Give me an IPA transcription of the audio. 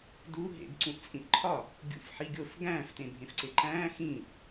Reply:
d u ɦ ḛ ɡ ǀ ũ ʔ t͡sʼ ĩ ʔ ǃʰ ɒ | ɡʲ ṵ f ħ i ɡʲ o f ɡ æ̃ː f t ẽ bʱ ẽ f ǀ e ǃ æ̃ː x ĩː ʔ

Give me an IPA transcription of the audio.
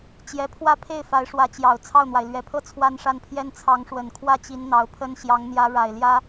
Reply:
t͡ɕ j ɛ˧˥ pʰ w ä˥˧ pʰ e˥˩ ɪ̯ f a˧˥ ɪ̯ ʂ w ä˧˥ t͡ɕ j ɑ˨˩ ʊ̯ t͡sʰ ɑ˥˩ ʊ̯ n̪ w a˩ ɪ̯ l ɥ ɛ˨˩ pʰ ɤ˥˩ t͡sʰ w a˥ n ʂ a˥˩ n pʰ j ɛ˥ n t͡sʰ ɑ˧˥ ŋ ʂ w ə˨˩ n kʰ w ä˥ t͡ɕ i˧˥ n n̪ ɑ˧˥ ʊ̯ pʰ ə˥ n ɕ j ɑ˧˥ ŋ n̪ j ä˧˥ ɻ a˨˩ ɪ̯ l j ä˥

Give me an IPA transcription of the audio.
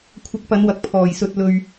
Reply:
kʷʰ ɐ˧ k̚ p ɐ˨˧ n w ɐ˨ k̚ pʰ ɔː˨ j s ɵ˧ t̚ l ɵ˧ ɥ

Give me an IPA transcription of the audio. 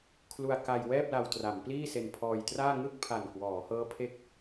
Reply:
kʰ l u˧ a̯ k a˧ j w ɛː˥˩ p̚ l a˧ w t r a˩˦ m p l iː˥˩ s e˧ n pʰ ɔː˧ j t r aː˥˩ ŋ ɯ˥˩ k̚ pʰ a˨˩ n k w ɔː˩˦ h ɤː˦˥ pʰ e˦˥ k̚

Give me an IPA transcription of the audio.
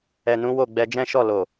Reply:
ɛ˨ n ũ˨˦ w o˦˨ ɡ͡b ɛ˧ d͡ʒ ɛ̃˦ ʃ ɔ˦˨ l o˨

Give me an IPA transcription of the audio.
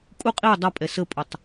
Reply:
kʼ u qʼ i dˤ ʌ pʼ ɛ s ə pʼ ʊ tˤ

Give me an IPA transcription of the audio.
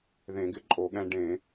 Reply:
ð ẽ˧˩˧ ɡ ɪ˧ ǃʼ o˧˩˧ ɠ ɛ̃˧ ɖ ẽ˧˩˧

